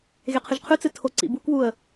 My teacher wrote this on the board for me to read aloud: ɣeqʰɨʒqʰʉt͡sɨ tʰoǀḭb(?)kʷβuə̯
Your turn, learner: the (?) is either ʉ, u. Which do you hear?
u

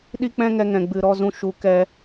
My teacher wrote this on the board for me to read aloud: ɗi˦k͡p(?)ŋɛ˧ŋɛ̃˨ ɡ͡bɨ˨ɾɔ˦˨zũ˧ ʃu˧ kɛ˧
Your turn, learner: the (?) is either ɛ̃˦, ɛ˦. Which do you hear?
ɛ̃˦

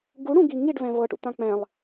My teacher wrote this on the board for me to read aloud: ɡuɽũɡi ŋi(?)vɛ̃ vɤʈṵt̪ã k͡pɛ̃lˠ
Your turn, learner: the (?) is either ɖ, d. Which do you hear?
ɖ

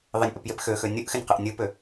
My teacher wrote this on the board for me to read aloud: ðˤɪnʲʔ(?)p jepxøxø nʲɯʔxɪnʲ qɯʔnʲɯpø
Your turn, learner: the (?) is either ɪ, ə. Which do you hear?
ə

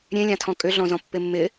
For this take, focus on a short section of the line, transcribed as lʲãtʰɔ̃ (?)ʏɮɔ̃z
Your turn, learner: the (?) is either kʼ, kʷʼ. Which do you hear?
kʼ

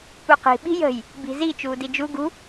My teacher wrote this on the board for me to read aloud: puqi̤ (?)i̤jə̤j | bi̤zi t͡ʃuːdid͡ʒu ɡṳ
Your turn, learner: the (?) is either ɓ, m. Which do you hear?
ɓ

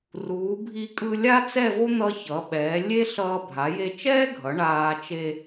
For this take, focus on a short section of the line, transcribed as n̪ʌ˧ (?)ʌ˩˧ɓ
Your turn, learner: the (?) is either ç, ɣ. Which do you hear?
ç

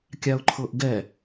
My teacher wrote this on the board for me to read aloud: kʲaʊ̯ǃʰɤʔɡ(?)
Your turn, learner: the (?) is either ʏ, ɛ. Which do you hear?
ɛ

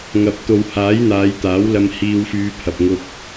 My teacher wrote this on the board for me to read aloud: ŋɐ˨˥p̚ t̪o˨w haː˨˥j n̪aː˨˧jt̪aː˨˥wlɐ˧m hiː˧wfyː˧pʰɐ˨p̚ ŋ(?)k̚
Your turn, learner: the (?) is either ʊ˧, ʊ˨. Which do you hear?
ʊ˧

